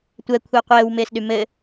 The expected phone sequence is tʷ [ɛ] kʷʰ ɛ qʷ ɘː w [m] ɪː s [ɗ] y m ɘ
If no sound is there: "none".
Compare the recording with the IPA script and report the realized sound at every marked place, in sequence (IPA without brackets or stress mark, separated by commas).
ɛ, m, ɗ